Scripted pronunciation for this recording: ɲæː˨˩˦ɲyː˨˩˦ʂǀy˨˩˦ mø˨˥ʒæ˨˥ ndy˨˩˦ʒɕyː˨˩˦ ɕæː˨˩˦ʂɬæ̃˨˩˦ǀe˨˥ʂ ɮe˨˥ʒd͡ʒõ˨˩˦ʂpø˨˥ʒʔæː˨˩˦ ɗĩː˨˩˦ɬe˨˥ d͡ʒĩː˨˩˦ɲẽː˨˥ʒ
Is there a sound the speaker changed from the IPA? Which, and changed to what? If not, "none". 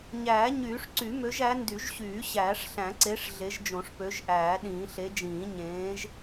none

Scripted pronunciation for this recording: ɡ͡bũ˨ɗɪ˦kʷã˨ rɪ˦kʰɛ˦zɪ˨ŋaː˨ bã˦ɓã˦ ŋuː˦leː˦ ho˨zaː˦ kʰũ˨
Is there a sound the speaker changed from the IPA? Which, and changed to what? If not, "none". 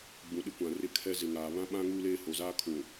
b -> β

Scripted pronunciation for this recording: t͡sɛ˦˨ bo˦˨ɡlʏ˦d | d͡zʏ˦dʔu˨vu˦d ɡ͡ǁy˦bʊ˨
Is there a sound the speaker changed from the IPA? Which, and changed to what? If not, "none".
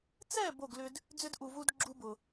y˦ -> u˦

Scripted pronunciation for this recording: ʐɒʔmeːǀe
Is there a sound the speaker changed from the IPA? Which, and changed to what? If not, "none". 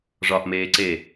none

